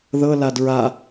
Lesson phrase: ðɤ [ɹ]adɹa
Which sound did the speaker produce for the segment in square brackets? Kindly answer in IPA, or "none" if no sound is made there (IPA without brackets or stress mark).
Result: l